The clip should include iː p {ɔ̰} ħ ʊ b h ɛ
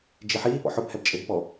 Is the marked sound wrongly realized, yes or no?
no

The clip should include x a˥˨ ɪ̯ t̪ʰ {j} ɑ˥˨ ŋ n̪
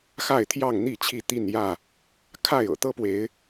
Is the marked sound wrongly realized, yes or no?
no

